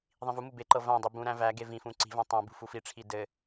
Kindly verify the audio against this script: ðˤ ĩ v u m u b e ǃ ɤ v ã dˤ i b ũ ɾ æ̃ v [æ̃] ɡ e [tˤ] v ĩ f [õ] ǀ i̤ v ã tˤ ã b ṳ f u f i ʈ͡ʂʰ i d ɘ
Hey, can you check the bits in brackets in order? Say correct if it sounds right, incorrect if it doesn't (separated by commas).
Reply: incorrect, incorrect, incorrect